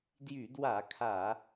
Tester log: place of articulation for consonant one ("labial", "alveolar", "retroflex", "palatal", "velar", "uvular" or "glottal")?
alveolar